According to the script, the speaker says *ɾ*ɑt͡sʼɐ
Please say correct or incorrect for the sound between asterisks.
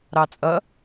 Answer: correct